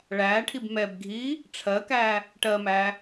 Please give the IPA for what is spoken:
ɭ æː ʈʰ i b m ɛ b ɡʱ iː | ʈ͡ʂʰ ɜ k æː | ʈ ɜ m æː

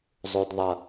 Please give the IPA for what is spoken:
zˤ o˨ d ðˤ ʌ˨

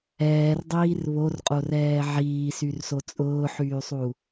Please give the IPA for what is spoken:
ɛː r dˤ iː r β o r qʼ o r ɛː ʕ iː s y r s o t͡sʼ ʊː ħ yː sˤ u

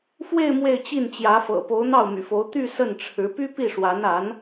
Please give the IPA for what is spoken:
f w e˥˧ ɪ̯ m w e˥˧ ɪ̯ t͡ɕ i˥˩ n t͡ɕ j ä˧˥ f ɤ̰˨˩ p o˧˥ ʊ̯ n̪ ɑ˥˩ ʊ̯ m y̰˨˩ f o˧˥ ʊ̯ t̪ y˥˧ s ə˥˩ n ʈ͡ʂʰ ɻ̩˧˥ p y˥ p i˥˩ ʂ w a˧˥ n a˧˥ n

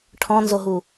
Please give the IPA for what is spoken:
ʈʰ ɔ̃ n z o ɦ u

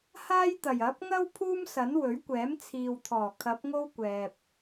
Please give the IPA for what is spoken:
h aː˥ j t̪ ɐ˨˩ j ɐ˨˥ p̚ ŋ ɐ˥ w pʰ uː˥ m s ɐ˨˥ n w ɵ˨˥ ɥ kʷ ɛː˨˥ m t͡sʰ iː˨ w t̪ʰ ɔː˨˩ kʰ ɐ˨˥ p̚ ŋ o˥ w kʷ ɛː˨ p̚

